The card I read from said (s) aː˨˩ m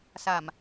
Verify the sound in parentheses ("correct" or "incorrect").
correct